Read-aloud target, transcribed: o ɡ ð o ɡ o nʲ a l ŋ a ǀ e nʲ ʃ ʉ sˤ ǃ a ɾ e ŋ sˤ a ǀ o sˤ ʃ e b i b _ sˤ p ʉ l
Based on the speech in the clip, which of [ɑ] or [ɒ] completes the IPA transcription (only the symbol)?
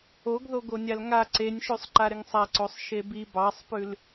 ɑ